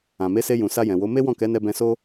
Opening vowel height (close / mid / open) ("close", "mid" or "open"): open